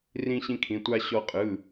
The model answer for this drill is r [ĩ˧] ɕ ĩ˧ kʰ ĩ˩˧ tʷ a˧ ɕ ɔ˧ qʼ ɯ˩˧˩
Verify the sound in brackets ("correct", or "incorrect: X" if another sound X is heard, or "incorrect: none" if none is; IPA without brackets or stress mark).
correct